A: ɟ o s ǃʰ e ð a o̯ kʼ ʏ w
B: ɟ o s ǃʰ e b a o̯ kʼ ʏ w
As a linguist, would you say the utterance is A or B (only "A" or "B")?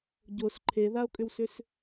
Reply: A